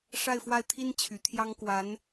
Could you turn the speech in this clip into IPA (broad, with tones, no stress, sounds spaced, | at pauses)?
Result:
ʂ a˥˧ ɪ̯ f w a˥˩ ɪ̯ t̪ʰ i˥ n t͡ɕʰ y˧˥ t̪ʰ j ɑ˥ ŋ k w a˧˥ n